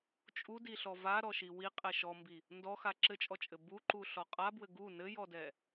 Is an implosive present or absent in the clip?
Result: absent